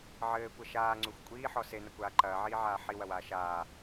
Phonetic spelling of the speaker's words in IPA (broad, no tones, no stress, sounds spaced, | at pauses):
ʕ ɘː kʷ ɐ ʃ aː ŋ͡ǀ u xʷ kʷʼ iː ħ ɔ s e n ɐ kʷ aː ǃ ɐː ʕ iː ʕ aː ħ i w ɐ w aː ʃ aː